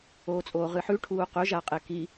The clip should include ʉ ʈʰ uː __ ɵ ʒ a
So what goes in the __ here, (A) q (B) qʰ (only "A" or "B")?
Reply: A